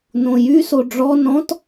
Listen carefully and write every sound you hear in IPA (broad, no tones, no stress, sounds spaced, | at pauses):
n õ j y s o ɖ͡ʐ ɔ n ɔ̃ t